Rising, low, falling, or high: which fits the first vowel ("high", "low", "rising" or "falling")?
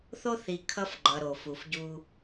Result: high